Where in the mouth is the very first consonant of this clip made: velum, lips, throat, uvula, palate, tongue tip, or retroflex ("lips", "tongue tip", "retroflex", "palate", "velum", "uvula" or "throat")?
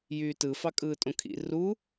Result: palate